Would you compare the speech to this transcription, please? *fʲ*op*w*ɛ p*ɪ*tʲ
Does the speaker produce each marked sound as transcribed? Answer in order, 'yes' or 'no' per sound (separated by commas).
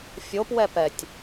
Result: yes, yes, no